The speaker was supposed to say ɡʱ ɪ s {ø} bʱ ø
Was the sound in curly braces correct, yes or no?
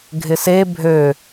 no